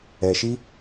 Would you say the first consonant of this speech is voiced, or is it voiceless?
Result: voiceless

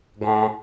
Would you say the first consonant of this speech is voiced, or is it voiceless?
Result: voiced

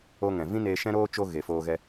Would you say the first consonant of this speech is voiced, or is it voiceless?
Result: voiced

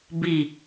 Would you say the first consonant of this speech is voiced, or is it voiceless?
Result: voiced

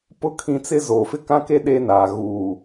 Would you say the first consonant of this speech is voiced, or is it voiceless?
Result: voiceless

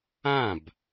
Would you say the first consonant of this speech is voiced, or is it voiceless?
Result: voiced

